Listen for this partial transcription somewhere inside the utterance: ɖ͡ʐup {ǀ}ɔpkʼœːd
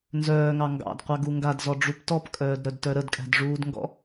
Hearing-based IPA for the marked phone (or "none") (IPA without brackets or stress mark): t